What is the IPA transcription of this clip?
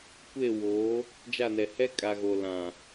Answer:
kʷ e˦˨ w oː˨˦ | d͡ʒ a˦˨ n ɛ˨ h ɛ˦ kʼ a˨ ɣ o˨ l ã˨

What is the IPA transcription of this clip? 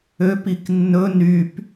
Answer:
ø p i k nː ɵ n y p

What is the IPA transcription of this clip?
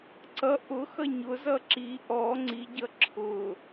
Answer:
ǀ ʌ ʔ ʊ x ʌ ɲ ʊ z ʌ ǁ i ʔ ɔ ŋ͡ǀ i ɟ ʌ ǁʰ ʊ

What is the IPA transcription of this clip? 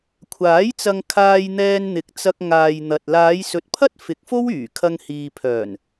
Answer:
kʷʰ aː˨˥ j t͡s ɐ˧ ŋ kʰ aː˧ j n̪ ɛː˧ n n̪ ɪ˨˥ k̚ t͡s ɐ˧ k̚ ŋ aː˨ j n̪ ɐ˨ t̚ l aː˨˧ j s ɵ˨ t̚ pʰ ɐ˥ t̚ f ɪ˨˥ k̚ f o˥ w yː˨˩ kʰ ɐ˧ ŋ h iː˨ pʰ œː˨˩ n

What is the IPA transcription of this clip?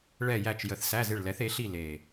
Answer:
ɭ ɛ˦˨ j æ˦˨ t͡ʃ j ə˨˩˦ θ s æ˧˥˧ z ɪ˦˨ ɭ l ɛ˩˥ θ e˩˥ ɬ i˦˨ l e˨˩

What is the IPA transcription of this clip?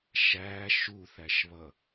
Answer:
ʃ æ ʃ u θ æ ʃ β ʌ

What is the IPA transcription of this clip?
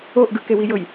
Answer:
o ʔ ɡ ɯ k e w i j ɤ j

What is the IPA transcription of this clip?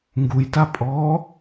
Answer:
ŋ ɡ u j t a pʼ ɔː

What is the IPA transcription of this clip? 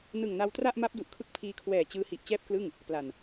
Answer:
n ɯ˨˩ ŋ n a˧ w t r a˥˩ ʔ m a˦˥ p̚ d u˨˩ ʔ kʰ ɯ˦˥ k̚ pʰ iː˧ kʰ w ɛː˨˩ t͡ɕ ɯː˦˥ h i˨˩ ʔ t͡ɕ ɛː˥˩ p̚ k l ɯ˥˩ ŋ | p l a˨˩ n

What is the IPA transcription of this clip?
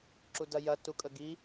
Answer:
ǁ u d ɐ j ɐ t u kʼ ə ɡ i

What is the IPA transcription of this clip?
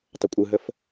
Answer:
tˤ ə kʷʼ ɯ ɦ ə f

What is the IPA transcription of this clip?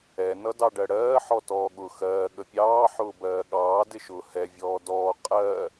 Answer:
ɛ n ʌ d ɑ ɖ ɜ ɽ ɜː ħ ɔ t ɔː ɠ ʊ x ɜː ɠ ə pʲ ɑː ħ ʊː b ɜː ɠ ɑː d ɪ ʃ ʊː h ɛ vʲ ɔː d ɔː qʼ ɜ

